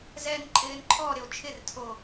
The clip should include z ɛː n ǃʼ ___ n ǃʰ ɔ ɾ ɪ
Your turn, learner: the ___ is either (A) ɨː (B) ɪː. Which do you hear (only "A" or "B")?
B